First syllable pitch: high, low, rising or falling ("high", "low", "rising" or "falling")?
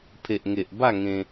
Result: low